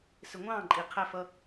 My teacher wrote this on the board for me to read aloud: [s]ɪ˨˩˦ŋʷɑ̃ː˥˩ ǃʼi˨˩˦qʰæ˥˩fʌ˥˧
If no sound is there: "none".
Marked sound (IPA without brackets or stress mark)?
s